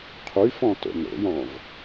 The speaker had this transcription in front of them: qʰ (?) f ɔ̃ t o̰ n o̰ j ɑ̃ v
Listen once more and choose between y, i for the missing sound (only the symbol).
y